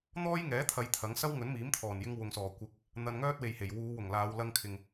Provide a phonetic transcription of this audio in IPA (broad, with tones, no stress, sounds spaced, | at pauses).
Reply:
n̪ ɔː˥ j ŋ ɛː˨˥ t̪ʰ ɐ˨˧ j t̪ʰ ɐ˨˥ ŋ s ɐ˥ w ŋ ɵ˨˥ n m iː˨˥ m t̪ʰ ɔː˨˩ n j ɪ˧ ŋ w ʊ˨ ŋ s ɔː˨˩ kʷ ɪ˨˥ k̚ | n̪ ɐ˧ n ŋ œː˥ t̚ w e˨ j h e˨˩ j w uː˨˧ w ʊ˨˩ ŋ l aː˨˧ w l ɐ˧ ŋ kʰ ɪ˨ ŋ